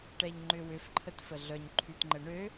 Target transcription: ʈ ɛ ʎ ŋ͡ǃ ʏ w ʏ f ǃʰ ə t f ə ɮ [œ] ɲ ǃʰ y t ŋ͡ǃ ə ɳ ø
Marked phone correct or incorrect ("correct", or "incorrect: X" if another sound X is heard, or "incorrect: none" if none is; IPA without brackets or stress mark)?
correct